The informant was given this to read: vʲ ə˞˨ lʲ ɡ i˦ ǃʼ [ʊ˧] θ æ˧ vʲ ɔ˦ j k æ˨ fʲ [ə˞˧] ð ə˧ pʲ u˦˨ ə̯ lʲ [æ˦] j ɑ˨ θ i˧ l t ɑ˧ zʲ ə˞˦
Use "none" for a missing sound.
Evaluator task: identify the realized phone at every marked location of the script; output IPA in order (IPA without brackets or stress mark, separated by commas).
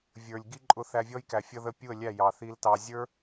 ʊ˧, ʌ˧, æ˦˨